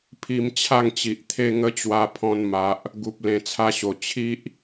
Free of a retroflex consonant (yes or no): yes